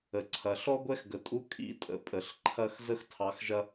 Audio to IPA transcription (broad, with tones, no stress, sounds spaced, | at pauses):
ə˩ ǀʰ ɐ˩ ɬ ɔ˥ ɡʷ ɛ˥ x ɡ ə˩ tʼ u˧˥˧ kʼ ḭ˨˥ tʼ ə̰˩ pʼ ə˩ ɬ ǃʰ ɐ˦˨ x z ə˥ x tʰ ɑ˨˥ x ʒ ɐ˥